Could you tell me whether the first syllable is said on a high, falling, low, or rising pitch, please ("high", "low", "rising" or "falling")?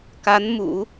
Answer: rising